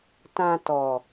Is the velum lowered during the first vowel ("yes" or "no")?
yes